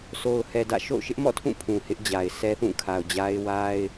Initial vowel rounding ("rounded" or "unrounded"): rounded